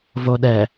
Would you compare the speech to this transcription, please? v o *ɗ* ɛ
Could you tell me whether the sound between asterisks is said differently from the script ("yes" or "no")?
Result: no